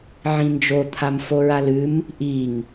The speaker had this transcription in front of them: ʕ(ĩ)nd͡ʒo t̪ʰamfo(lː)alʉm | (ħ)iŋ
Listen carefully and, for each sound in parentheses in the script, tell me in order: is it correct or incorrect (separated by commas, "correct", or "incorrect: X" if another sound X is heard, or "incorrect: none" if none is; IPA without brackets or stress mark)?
correct, incorrect: ɹ, incorrect: ʔ